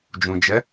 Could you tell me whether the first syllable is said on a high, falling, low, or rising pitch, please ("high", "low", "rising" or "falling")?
low